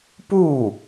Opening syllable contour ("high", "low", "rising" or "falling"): falling